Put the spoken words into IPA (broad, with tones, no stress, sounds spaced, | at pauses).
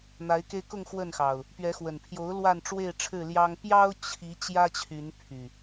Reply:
n̪ a˨˦ ɪ̯ k e˧ ɪ̯ k ʊ˥˨ ŋ x w ə˥˨ n x ɑ˨˩ ʊ̯ | p ɥ ɛ˨˦ x w ə˨˩ n pʰ j o˨˦ ʊ̯ l w a˥˨ n ʈ͡ʂ w e˥˨ ɪ̯ ʈ͡ʂʰ ɻ̩˥˨ l j ɑ˦ ŋ p j ɑ˦ ʊ̯ t͡ɕʰ i˨˦ t͡ɕ j ä˦ t͡ɕʰ y˨˦ n pʰ y˨˩